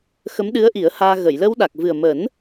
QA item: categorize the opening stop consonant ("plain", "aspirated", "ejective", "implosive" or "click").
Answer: implosive